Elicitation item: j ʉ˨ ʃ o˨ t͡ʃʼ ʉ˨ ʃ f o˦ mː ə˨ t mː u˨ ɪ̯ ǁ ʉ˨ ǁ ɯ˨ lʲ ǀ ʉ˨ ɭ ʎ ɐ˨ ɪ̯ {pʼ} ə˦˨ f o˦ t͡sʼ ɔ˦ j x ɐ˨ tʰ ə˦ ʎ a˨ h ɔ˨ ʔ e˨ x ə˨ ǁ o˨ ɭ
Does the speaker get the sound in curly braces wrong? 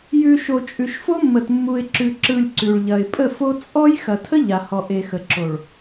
no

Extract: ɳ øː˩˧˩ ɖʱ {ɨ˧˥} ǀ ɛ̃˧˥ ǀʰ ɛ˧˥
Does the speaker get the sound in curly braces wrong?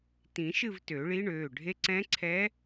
yes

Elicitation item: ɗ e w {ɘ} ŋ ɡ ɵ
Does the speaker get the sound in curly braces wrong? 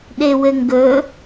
no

